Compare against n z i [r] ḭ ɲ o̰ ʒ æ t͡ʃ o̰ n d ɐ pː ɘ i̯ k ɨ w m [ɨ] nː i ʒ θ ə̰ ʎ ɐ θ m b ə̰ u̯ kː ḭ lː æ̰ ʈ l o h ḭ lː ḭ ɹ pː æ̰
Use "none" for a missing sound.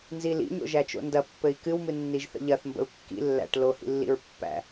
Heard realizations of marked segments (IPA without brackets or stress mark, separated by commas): l, ɨ